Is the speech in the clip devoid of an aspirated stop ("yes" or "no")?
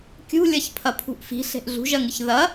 no